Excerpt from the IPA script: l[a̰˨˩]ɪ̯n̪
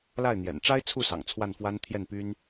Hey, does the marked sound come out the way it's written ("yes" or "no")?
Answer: no